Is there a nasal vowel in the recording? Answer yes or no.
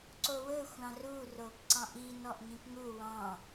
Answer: yes